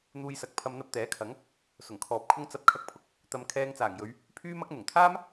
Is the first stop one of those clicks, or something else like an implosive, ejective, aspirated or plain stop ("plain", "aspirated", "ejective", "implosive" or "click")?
plain